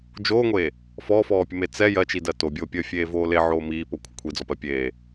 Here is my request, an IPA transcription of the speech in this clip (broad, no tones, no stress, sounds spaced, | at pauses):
d͡ʒ oː ŋʷ eː | f ɔː f ɔː pʲ ə m e t͡s ɛ j ɜ t͡ʃ i d ɜ t o bʲ oː pʲ əː fʲ eː v oː l e ʕ oː m iː p o kʷʰ ə kʷʰ i d͡z ɔ p ɜ pʲ eː